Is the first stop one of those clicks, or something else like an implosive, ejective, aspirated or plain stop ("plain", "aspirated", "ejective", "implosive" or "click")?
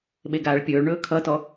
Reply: implosive